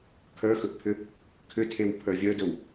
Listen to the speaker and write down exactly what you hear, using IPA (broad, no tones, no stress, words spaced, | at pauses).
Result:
kʰə˞xɵʔpʰʏ | kʰʏtʰewpʰə˞ vʲə˞dɵw